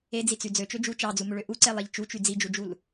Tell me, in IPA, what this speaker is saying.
ed͡zit͡sy d͡zøt͡ʃø d͡ʒu t͡ʃɑd͡zumøɭø ʔuǀelˠeʎ t͡ʃut͡ʃy d͡zid͡ʒud͡ʒul

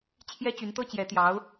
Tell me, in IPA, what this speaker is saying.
t͡ɕʰjɛ˥t͡ɕy˧˥nt̪ɤ˥ t͡ɕjɛ˧˥t̪jɑ˧˥ʊ̯

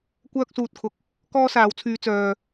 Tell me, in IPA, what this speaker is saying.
kʷœː˥k̚suː˧t̚kʰʊ˨k̚ | kɔː˥saː˨˧wt͡sʰyː˧ t͡sœː˨

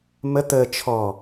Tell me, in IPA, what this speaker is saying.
mə t̪ə t͡ʃʰɔ

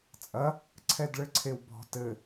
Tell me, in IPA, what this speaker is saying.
t͡sʼɐ | ǀʰɛdɭɘǀʰewbɔ̤ tɘ

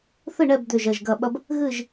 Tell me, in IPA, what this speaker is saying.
θɨ˥˨ɳɛ˥˨b d̪ø˥˨ʒɐ˥˨ʒɡɐ˥˨ ɓɐ˥b | ɣɨ˥˨ʒ

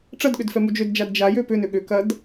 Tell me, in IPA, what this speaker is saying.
ʈ͡ʂɐdɠʏd fɛmud͡ʒødd͡ʒad d͡ʒajø pʏnʏ ɠʏ kɐd

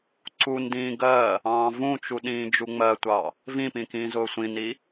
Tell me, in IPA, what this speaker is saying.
ǀundĩː ɡɜ | ɑ̃ːvũt͡ʃu ɗĩːd͡ʒuŋ͡mɜtʷɑ | vĩpĩ kĩːzʊːsʷĩni

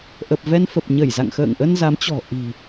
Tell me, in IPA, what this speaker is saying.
ʔə˨˩p̚vɛ˧nfə˨˩p̚ ɲə˧˩jza̰˧˨ŋxə̰ː˧˨ŋʔə˧n za˨˦mt͡ɕɔ̤˨˩ ʔi̤˨˩

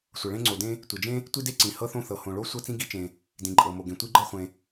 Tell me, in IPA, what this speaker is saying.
sʷɤ˩ɭẽ˥ŋ͡ǀo˩ dẽ˥ | tʷi˩d͡ʒẽ˥ | tʷi˥de˥ ǀĩ˩ hɤ˥θõ˥θɤ˩ hõ˩ɭo˥ sʷɤ˥t͡sĩ˥ɡi˥t͡ʃẽ˩ | dĩ˩ǃʼɤ˩mo˩ ɡẽ˩ tʷi˥ɡ͡ǃɤ˥χʷẽ˩

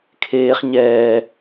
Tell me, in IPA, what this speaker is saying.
kʰeːχ ɲɛː

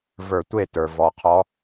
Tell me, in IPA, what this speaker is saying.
və˞˧˩˧tʷe˥˩tə˞˩ vɔ˩˧qʰɔ˧˥

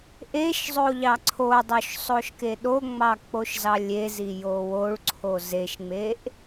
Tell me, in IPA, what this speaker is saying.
ʔeʃzˤo ʎɑǀʰodˤoʃ sˤoʃkeɗoŋ͡mɑ k͡poʃzɑlʲezi jowoɭǀʰo zeʃŋ͡meʔ

